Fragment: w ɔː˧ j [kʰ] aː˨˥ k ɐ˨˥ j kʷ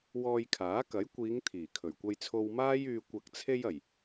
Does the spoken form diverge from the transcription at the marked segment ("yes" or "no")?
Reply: no